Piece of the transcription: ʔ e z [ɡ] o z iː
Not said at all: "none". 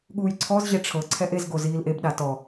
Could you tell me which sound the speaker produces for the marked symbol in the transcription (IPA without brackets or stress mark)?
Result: ɡ